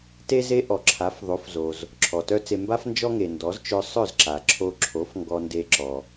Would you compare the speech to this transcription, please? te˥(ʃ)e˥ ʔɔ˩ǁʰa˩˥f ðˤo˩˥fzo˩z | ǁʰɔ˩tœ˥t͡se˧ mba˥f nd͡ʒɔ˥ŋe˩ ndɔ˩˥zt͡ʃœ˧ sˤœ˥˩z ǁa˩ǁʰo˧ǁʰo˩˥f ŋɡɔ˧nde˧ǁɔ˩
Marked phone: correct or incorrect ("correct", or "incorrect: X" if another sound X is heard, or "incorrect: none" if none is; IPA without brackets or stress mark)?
incorrect: z